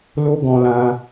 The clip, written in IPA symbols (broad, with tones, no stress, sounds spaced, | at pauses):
l o˦ ɡ ɔ̃˧ l ã˧